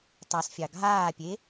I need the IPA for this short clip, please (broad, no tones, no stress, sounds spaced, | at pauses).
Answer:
tˤ ɑ s fʲ ɑ ɡʱ aː pʲ e